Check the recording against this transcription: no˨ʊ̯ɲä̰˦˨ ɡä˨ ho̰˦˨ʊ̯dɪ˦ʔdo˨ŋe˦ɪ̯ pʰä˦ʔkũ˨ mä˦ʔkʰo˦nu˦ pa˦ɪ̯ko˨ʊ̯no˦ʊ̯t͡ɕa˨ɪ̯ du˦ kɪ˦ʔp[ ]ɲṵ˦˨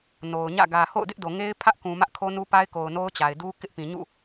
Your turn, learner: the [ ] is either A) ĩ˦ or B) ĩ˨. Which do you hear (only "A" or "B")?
B